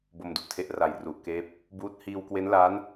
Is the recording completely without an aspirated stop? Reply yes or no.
no